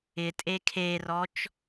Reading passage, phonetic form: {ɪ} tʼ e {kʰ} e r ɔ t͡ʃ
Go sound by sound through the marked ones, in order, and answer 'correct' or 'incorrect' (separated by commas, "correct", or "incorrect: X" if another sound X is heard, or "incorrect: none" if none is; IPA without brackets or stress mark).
correct, correct